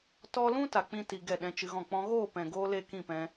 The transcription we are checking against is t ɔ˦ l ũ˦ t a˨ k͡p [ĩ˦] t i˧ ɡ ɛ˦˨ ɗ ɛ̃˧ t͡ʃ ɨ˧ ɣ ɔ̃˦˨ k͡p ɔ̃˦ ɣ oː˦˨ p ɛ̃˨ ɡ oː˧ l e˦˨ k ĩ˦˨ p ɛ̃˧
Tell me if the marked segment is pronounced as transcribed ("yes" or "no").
yes